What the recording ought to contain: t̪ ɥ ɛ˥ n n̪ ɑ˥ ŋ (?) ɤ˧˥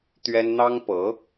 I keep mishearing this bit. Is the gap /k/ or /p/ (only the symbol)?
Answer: p